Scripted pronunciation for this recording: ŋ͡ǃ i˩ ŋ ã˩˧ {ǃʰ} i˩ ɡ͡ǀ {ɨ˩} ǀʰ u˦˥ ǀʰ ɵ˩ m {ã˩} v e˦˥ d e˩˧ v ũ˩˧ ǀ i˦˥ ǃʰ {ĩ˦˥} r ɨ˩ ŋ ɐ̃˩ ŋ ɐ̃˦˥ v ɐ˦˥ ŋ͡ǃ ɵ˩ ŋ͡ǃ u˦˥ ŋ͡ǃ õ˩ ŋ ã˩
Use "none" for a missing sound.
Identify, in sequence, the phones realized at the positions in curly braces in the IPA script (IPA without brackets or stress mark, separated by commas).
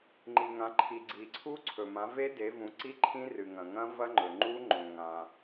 ǃʰ, i˩, ã˩˧, ĩ˦˥